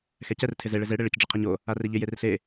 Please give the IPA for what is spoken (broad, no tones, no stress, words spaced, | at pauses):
xɛcɛr tʰɪze ɭɪze ɽeɭɪc ɖ͡ʐɪqʰeɲo | areʎɪ jerɬe